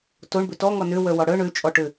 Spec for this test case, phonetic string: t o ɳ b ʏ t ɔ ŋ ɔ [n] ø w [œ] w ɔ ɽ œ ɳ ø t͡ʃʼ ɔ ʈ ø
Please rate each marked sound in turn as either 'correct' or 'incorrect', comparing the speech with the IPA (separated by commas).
correct, correct